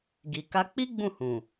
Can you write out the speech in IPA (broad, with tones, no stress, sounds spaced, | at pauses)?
ɡ i˨ k a˧ k͡p i˦ ɡ͡b ũ˦˨ h ũ˨